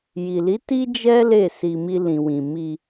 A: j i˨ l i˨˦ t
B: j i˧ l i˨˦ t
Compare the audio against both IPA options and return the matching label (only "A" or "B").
A